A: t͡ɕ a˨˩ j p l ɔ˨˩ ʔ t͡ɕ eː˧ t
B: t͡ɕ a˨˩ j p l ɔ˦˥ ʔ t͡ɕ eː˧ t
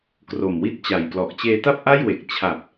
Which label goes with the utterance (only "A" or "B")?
A